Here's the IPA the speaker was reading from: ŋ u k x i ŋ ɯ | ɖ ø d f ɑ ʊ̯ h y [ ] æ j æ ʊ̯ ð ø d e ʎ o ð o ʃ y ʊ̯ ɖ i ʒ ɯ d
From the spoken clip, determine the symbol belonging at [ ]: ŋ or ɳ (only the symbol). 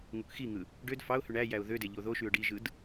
ɳ